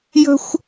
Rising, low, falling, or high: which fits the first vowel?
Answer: high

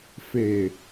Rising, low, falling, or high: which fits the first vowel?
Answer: low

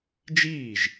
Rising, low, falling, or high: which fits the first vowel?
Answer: falling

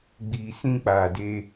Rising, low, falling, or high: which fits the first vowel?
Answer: low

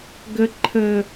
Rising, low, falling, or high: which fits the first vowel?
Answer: high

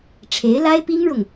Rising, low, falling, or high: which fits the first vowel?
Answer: rising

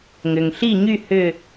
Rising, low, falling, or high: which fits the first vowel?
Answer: low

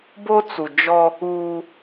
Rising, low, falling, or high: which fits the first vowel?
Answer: high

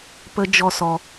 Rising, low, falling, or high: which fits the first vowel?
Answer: high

